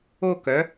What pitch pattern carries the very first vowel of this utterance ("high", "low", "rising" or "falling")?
high